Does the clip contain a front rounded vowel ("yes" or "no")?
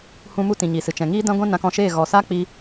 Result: no